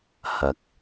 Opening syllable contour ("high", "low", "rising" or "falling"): rising